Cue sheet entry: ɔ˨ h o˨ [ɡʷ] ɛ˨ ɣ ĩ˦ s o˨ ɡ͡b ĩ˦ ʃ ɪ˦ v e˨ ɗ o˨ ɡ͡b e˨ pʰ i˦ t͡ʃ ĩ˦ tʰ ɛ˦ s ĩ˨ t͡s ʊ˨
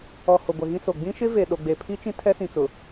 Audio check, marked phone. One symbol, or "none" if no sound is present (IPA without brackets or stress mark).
ɡʷ